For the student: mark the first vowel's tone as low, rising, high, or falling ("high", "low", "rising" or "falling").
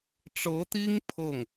rising